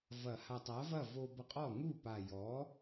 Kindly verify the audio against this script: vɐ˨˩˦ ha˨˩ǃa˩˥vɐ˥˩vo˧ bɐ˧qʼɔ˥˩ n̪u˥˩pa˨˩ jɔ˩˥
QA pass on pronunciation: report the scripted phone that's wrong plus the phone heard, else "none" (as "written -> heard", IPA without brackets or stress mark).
ǃ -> tˤ